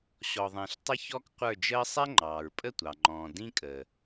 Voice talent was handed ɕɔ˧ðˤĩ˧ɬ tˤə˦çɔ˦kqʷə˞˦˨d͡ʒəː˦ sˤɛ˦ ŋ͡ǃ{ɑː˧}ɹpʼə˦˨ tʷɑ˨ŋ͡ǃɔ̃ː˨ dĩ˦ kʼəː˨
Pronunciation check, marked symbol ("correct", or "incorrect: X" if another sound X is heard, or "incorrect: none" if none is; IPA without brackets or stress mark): incorrect: ɑː˨